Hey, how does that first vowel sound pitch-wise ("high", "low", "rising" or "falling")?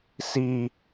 high